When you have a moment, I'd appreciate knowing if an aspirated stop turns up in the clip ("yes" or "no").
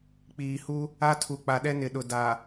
yes